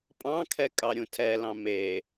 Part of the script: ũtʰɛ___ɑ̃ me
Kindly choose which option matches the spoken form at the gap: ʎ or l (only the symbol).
l